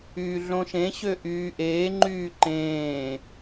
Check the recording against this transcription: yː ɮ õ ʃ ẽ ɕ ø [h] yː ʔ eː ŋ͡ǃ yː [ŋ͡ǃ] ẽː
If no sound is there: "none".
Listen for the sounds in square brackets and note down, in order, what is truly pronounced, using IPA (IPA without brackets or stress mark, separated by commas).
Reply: ʔ, ǃ